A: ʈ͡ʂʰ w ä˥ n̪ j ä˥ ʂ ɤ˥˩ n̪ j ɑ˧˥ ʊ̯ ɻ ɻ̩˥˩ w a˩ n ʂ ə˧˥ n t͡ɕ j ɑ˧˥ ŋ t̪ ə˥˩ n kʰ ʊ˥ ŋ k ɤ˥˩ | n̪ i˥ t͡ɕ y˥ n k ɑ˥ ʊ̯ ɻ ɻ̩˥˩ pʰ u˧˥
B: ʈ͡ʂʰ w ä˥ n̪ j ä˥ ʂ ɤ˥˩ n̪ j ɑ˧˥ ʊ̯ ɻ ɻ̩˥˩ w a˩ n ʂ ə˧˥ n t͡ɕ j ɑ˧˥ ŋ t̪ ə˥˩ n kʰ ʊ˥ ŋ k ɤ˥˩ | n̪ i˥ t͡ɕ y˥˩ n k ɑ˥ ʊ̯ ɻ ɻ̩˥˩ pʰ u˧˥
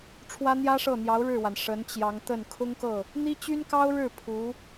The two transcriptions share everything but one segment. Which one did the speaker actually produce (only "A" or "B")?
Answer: A